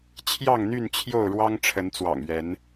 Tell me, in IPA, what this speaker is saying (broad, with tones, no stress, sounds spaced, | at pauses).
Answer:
t͡ɕʰ j ɑ˥˨ ŋ n̪ y˥˨ n t͡ɕʰ j o˥˨ ʊ̯ ɻ w ɑ˦ ŋ ʈ͡ʂʰ ə˨˦ n t͡s w ɑ̰˨˩ ŋ ɥ ɛ˨˦ n